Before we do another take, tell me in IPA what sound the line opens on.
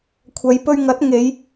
kʷʰ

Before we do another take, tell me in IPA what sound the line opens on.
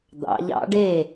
d̪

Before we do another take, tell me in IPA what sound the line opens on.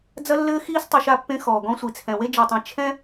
d͡z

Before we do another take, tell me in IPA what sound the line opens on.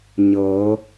ɲ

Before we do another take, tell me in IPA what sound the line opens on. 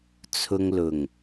t͡sʰ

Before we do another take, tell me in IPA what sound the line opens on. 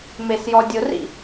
m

